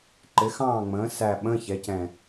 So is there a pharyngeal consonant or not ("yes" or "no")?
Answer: no